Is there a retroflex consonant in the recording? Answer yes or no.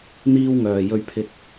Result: no